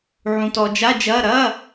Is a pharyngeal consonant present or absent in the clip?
present